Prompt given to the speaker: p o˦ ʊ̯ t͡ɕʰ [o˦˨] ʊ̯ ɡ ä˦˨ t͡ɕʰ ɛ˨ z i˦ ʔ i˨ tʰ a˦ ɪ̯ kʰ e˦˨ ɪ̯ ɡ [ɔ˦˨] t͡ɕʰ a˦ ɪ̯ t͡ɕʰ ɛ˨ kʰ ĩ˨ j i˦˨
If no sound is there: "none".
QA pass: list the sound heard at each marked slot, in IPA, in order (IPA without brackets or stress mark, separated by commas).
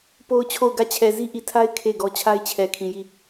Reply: o˦˨, ɔ˦